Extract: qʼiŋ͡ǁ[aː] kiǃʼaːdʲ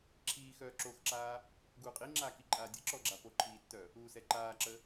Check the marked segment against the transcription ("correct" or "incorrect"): correct